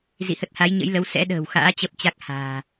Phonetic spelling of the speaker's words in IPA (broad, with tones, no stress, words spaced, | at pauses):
zḭ˧˨hə˦˥t̚ha˨˦j ɲə̰˧˥jlə˨˦w sɛ̰˧˥ɗə̤ː˨˩wxa̰ː˧˥ t͡ɕə˦˥p̚t͡ɕa˦˥k̚ ha̤ː˨˩